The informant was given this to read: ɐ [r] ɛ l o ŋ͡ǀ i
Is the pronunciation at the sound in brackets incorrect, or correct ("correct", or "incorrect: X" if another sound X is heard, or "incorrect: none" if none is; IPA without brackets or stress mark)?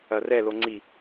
correct